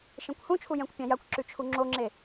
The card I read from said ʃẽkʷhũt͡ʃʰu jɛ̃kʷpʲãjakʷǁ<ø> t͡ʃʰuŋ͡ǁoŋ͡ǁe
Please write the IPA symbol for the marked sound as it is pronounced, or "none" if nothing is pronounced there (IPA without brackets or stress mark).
ʉ